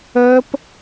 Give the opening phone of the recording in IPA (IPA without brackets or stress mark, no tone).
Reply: əː